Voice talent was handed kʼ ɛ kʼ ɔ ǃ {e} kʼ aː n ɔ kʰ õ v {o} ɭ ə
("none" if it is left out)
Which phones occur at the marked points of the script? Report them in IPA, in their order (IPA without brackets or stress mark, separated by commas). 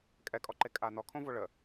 e, o